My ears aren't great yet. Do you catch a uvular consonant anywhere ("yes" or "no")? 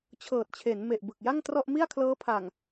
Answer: no